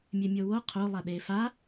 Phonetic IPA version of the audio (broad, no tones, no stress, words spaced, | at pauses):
mʲemʲowo qʰo lˠaɗefa